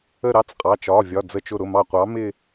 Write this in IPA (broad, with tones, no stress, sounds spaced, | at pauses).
ə˥˧ ɾ ɑ˦˥ t͡s qʼ ɑ˩˧˩ t͡ʃ ɒ˩˧˩ vʲ ɒ˩˧˩ d͡z ə˧˩ t͡ʃ ʊ˧˩ ɾ ʊ˩˧˩ m ɑ˧˩ qʷ ɑ˨˥ m ɪ˥˧